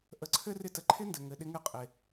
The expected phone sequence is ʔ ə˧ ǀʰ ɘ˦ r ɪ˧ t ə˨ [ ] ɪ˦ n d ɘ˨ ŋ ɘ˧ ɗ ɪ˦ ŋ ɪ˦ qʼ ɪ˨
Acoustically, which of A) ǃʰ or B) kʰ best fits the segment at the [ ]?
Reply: A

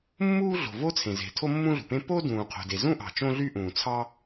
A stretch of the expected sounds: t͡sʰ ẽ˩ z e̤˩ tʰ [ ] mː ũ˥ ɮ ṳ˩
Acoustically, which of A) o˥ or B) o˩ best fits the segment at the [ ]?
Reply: A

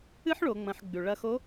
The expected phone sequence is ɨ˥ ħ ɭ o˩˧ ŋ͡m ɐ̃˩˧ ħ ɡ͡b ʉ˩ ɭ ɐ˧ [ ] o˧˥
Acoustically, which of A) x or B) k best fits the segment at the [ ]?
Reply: A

